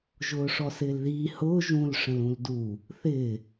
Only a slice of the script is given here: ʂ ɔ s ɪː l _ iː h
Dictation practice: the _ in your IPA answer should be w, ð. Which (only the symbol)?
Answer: ð